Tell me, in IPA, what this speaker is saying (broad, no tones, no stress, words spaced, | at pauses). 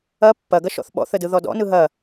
ɐ pːɐɡɐʃ ɔ̰θɓɔ̰θə dɯðɔdɔ̰nɯ ɦɐ